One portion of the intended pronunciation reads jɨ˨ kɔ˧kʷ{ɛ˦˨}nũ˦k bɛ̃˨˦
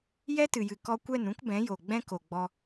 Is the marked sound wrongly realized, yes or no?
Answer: no